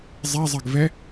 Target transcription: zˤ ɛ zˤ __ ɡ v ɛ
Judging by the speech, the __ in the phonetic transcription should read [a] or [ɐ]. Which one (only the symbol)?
ɐ